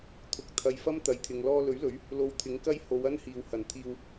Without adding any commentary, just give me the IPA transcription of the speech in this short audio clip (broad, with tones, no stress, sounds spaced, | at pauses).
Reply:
t̪ʰ ʊ˨ k̚ t̪ʰ ɐ˨ j f ɐ˥ m t̪ ɐ˨ j t̪ʰ ɪ˨ ŋ l ɔː˧ l ɵ˨˥ ɥ l ɵ˨˥ ɥ | l o˨˧ w t̪ʰ ɪ˨˥ ŋ k ɐ˥ j h o˨˧ w ɐ˥ n h iː˨ w h ɐ˨˩ n t̪ʰ iː˧ w